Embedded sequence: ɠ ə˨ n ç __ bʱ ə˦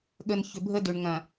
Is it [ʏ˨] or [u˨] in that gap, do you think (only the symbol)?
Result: ʏ˨